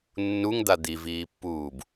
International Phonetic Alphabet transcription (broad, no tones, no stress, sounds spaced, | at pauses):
nː u ŋ d̪ a d̪ i v iː pː uː b